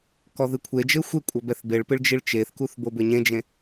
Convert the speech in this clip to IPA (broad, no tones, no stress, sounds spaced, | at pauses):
k ɔ ð ɨ kʷʰ e d͡ʒ ɘ xʷ e kʷʼ ɐ b ɛ θ b e ɭ p ɨ ɭ d͡ʒ i ɭ t͡ʃ e θ k u θ b o b ɘ ɲ ẽ d͡ʒ ẽ